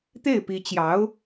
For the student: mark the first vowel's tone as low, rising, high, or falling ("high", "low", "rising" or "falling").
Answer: falling